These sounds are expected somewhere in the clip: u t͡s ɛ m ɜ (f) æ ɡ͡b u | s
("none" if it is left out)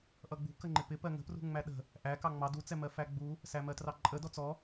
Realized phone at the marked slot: f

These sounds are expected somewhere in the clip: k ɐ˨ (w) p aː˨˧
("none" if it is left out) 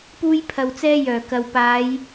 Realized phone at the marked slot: w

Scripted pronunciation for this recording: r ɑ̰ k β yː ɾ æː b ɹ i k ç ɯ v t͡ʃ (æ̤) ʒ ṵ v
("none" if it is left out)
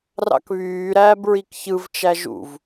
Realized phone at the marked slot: æ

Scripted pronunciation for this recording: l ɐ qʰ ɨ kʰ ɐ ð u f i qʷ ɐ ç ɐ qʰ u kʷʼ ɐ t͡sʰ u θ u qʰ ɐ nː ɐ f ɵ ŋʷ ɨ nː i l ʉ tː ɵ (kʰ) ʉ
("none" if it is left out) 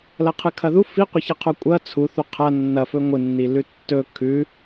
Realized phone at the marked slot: kʰ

